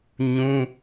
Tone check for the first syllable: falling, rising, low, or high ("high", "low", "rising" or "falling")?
high